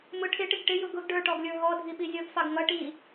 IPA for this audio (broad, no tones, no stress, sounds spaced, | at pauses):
m ʊ ʈʰ ɪ ʈ ɪ ɡ ʈ ɪ j ʊ ɡ ʊ ɡ ɖ ə˞ ʈ ɔ ɡ lʲ ə˞ ɦ ɔ dʱ i ɓ i zʲ ʌ ɡ f ɑ ɡ ŋ ʌ ʈ i